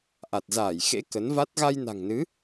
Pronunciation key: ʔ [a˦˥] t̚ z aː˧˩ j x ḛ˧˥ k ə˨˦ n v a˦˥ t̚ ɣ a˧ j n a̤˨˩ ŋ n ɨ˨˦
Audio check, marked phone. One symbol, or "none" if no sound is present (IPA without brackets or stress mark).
a˨˩